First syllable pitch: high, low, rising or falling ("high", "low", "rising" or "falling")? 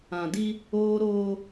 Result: low